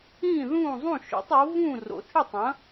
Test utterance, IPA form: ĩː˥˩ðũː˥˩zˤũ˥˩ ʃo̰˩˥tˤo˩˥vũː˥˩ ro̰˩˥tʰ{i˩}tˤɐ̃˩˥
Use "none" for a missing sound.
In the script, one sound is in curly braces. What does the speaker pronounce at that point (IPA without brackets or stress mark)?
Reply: i˥˩